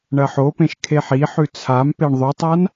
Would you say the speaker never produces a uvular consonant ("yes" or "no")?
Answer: yes